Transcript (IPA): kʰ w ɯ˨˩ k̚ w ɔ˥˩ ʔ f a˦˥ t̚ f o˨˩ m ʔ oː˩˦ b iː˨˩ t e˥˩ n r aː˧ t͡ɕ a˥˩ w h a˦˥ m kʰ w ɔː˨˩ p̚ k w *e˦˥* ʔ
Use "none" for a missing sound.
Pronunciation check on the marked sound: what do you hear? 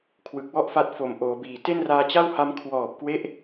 e˦˥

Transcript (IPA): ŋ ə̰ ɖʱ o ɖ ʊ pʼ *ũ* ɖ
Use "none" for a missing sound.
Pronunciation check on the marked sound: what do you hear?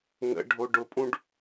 ũ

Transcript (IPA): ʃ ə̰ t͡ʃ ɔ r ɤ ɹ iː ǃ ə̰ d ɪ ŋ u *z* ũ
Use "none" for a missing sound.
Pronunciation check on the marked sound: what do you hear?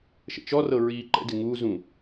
z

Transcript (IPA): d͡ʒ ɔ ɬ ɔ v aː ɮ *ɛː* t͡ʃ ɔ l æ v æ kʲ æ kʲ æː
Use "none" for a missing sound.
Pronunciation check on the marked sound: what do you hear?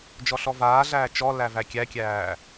æː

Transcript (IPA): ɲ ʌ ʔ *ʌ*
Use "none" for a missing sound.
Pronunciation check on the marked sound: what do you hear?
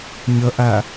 a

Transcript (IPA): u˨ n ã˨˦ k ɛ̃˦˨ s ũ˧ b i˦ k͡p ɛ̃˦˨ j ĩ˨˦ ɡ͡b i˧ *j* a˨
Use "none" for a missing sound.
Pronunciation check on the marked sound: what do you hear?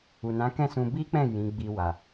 w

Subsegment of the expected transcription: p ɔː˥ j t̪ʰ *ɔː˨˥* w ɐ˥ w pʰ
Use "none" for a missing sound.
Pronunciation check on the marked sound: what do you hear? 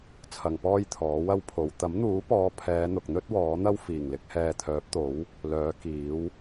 ɔː˨˥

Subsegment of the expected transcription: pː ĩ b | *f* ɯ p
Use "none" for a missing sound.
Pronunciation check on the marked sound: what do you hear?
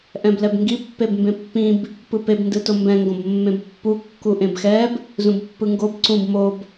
p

